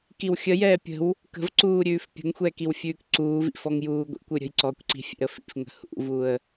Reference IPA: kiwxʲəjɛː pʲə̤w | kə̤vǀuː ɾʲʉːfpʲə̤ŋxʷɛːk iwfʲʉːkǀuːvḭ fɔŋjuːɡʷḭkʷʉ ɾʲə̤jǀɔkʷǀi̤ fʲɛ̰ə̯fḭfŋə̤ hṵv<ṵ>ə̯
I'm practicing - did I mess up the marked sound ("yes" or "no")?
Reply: yes